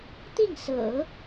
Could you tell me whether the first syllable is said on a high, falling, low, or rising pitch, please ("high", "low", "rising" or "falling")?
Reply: falling